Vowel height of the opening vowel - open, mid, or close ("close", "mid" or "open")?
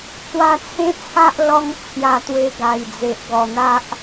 open